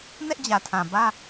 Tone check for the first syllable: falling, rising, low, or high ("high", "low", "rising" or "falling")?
high